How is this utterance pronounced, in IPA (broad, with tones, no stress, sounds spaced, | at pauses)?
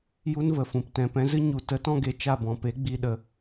j u˦ n v ə˨ f ũ˨ p t ɛ̃˨ p ɛ̃˧ z ɨ˦ ɲ u˨ t ə˨˦ t ɔ̃˧ ɡ e˨ t͡ʃ a˦˨ b ɔ̃˨ p e˨˦ ɡ͡b i˨ ɗ ə˨